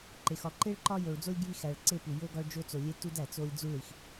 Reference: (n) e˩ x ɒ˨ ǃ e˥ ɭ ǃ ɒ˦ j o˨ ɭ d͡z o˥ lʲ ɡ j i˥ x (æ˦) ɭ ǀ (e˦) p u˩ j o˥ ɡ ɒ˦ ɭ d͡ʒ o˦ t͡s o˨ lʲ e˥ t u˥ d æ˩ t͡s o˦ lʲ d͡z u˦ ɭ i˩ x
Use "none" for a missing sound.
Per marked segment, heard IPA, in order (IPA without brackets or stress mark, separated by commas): ǃ, æ˨, e˦